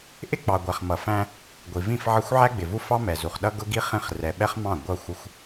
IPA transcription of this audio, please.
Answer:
ʔ ɪ˦ k͡p ɑ˨ ɡʷ æ˨ χ m ʌ˨ f æ̃˦ | ɡʷ i˨ v ĩ˦˨ f ʕ ə˦ xʷ ʕ æ˦ ɡ͡b ɪ˨ v u˦ f ɑ˦ m ɛ˨ z u˨ χ ɗ ʌ˦ ɡ ʊ˦ ɡ i˦ χ ĩ˦˨ χ r ɛ˨ ɓ ɛ˦ χ m ɑ̃˦˨ ɡʷ ʌ˦˨ xʷ ɪ˦ xʷ

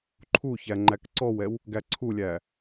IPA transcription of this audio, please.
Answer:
ǃʰ u ç æ ŋ͡ǃ æ k ǀ ɔ w ɛ w | ɡ æ ǀʰ u lʲ æ

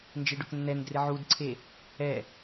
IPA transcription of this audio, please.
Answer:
n d͡ʒ e ɖ ʊ k nː ɛ n d r ɪ ʕ u d ǀʰ e | ɛ

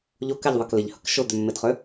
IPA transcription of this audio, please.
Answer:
ʎ o k ɛ ʎ ðˤ ɛ k l ɪ ʎ h ə k ʃ ʊ d̪ ø mː ɪ d χ ø

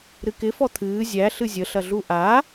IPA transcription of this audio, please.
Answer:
ɾ ɨ k ɪ f ɔ t̪ʰ ɨː zʲ æ ɬ ɨ zʲ ə ɬ ɐ ɮ u ʔ a

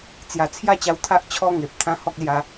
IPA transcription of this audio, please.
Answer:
t͡s j a˨˩ t͡sʰ j a˥˧ t͡ɕ a˧ w t̪ʰ a˦ ʔ t͡ɕʰ ɔ˦ ŋ e˨ p̚ t̪ʰ ã˦ h ɔ˦ k̚ l j a˧

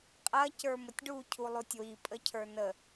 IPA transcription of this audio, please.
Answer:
qʼ ɐ c ə˞ m ə tʲ ɖ u cʰ u lˠ u tʲ w i pʼ ə cʰ ə˞ n ə

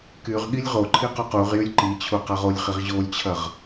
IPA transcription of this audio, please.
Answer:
k y ʁ ɠ i lʲ ʁ o ǃʰ i q ɵ q u ʁ j y lʲ ǃ i t͡ɕʰ u q a ʁ o lʲ χ i ʁ ʑ o lʲ t͡ɕʰ ɐ ʁ

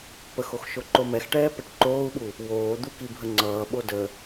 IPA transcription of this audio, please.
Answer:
p ə x o x ʃ o ǃ o m ɛ x ʈ ɛː p ɛ ʈ ǃ oː u̯ ɓ u | w oː d̪ u k i bʱ ə ŋ͡ǀ ʌː ɓ o d ə

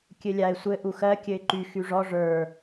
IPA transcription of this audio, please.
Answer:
kʲ ɘ lʲ a ɪ̯ sʷ ɘ ʔ u x ɜ kʲ ɘ ɪ̯ ǃ y x y ʐ ɔ ʐ ə˞

